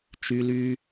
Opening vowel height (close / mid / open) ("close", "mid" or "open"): close